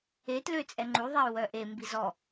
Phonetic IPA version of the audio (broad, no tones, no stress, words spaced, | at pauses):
etlø t͡sʼɛŋ͡ǃuðˤɛu̯ wœʔembiz ɔ